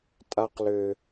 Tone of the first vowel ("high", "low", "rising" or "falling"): high